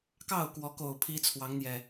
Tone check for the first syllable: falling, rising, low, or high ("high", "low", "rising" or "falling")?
falling